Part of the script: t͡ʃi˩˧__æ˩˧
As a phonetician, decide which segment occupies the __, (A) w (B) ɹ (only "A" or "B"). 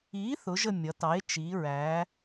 B